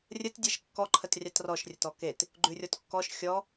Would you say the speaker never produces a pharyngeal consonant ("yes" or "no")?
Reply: yes